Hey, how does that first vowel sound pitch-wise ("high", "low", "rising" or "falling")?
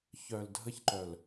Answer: low